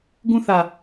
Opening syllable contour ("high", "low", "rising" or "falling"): high